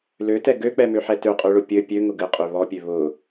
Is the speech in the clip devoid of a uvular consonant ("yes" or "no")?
no